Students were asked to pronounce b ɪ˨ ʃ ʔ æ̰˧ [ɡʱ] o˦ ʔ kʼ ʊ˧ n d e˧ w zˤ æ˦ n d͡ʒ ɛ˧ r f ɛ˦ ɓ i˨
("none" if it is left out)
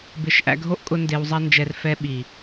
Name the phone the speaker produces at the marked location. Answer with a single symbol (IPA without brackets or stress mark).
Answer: ɡʱ